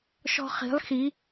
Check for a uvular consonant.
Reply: present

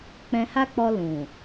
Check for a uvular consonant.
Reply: absent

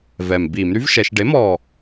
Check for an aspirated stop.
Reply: absent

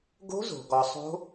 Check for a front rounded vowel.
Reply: absent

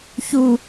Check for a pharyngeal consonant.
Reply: absent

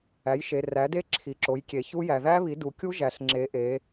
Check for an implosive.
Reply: absent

